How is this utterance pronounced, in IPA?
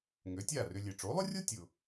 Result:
ŋø˩˥tʲa˥˩rʏ˧ lʲe˩ʈ͡ʂo˩˥lˠʊ˥rʲo˥ tʲʊ˩

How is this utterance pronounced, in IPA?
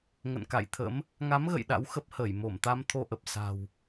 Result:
ŋə̰˧˨nka̰˧˨jt̪ʰə̰˧˥m | ŋa˨˦mɣə̰˧˨j ɗa̰˧˥wxə˦˥p̚həː˧˩j mo˧˩mt̪a˧m t̪ʰo˧ʔə˨˩p̚ sa̤˨˩w

